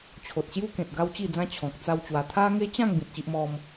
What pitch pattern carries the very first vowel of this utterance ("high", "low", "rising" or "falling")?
low